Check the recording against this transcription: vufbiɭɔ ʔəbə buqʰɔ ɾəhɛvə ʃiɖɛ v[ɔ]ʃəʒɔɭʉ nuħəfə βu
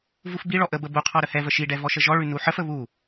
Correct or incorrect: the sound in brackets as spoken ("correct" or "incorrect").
correct